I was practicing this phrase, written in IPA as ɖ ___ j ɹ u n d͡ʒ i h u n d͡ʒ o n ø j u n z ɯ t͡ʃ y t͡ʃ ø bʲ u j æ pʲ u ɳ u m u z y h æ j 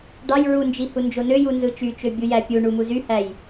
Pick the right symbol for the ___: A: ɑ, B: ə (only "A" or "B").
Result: A